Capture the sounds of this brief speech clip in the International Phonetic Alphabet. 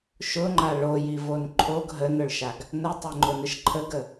ʃʊŋ͡ǃa ɭojivon ǃʰoɡ ɦənʊɭʃaɡ | nətˤʊŋ͡ǃʊnəʃ ǃʰəɡə

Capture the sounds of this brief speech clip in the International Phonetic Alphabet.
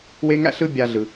we˦ŋæ̰˥ɬɯ˦ bʲa˨ɮɯ˩

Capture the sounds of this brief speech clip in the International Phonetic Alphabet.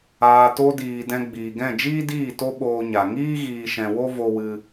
aː˨to˧diː˨ dɛ̃˧ɡ͡biː˨ɡɛ̃˦˨ d͡ʒiː˦diː˦˨ to˦ɓoː˧ ɲa˨ŋiː˦ ɣiː˧ʃɛ̃˧wo˦ vo˦wɨ˦

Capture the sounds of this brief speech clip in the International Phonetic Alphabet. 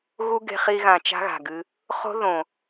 ɣu˦ ɡe̤˧χi˧ɣã˨ t͡ʃa̤˦ɣa̤˨ɡɨ˧ | χo̤˦ðõ˨

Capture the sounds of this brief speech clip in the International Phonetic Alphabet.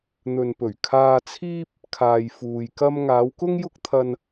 n̪ɵ˨npɵ˨˩ɥ kʰaː˧t͡sʰiː˥p̚ | kʰaː˨jfuː˨jkɐ˥m ŋaː˨˧wkʊ˥ŋ jʊ˥k̚t̪ʰɐ˧n

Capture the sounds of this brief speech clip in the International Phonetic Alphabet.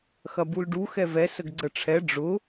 xɐbulɖu xɛvɛ səɡɡ͡ǀəʈ͡ʂʰɛ ɖ͡ʐʊ

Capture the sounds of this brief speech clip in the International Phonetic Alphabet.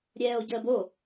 ɾʲɛːo̯ɟəːbo

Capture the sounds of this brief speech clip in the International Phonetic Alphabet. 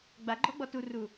ɡ͡baɡ͡ǃɔɡ͡bɔ turu

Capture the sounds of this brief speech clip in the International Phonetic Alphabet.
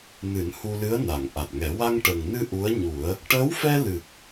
nɨ˨˩˦nhu˧lɨ˧˥ə̯ na˨˩˨ŋ ʔa˨˩t̚ŋɛ˨˩˦ wa˧ŋʈə˨˩ŋnɨ˧ ʔu˧˥ə̯ ɲu˨˩˦ə̯ | ʈəː˧˥wfɛ˧lɨ˨˩k̚

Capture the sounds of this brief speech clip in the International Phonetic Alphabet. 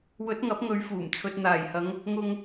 wɵ˨˥t̚ŋɐ˨˥p̚ŋɵ˨˧ɥ fuː˨˩m t͡sʰɵ˨t̚n̪aː˨˩jhɐ˨˧ŋ | ŋʊ˧ŋ

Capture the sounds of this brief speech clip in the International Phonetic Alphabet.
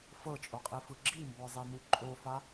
fɤt͡ʃʼoqʼifɯ ɡ͡ǁimbɔzˤenu ǃʼofa

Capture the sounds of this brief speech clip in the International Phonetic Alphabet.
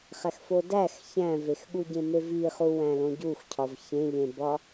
χæxfodæx çæ̃vexɠuɟẽ meviχu wæ̃lõɟuxcʰɒv çẽʎẽbɒ

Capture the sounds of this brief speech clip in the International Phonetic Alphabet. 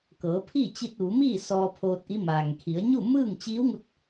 kɤː˩˧pʰi˥˨t͡ɕi˧t̚ ʋu˩˧miː˥˨ sɔː˧pʰoː˧t̚ʔi˧˥ maː˩ŋkʰi˩˧ə̯ ɲu˥˨mɯː˥˨ŋt͡ɕiː˧˥wŋu˧t̚

